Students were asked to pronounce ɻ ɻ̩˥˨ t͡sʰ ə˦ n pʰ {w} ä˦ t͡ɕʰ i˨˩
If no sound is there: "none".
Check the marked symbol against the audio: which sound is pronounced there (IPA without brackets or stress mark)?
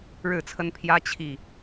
j